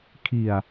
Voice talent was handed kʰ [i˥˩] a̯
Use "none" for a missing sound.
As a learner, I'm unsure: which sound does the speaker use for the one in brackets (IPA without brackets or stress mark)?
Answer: i˨˩